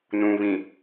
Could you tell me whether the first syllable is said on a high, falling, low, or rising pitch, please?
low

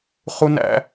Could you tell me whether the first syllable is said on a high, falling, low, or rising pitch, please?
high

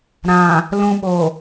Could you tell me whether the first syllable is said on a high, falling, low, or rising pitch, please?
low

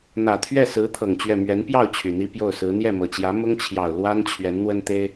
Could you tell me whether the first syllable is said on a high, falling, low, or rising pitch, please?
low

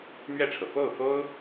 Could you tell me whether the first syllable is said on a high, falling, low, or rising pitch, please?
falling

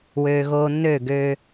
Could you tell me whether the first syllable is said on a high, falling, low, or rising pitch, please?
low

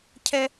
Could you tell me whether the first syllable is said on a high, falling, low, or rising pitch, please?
high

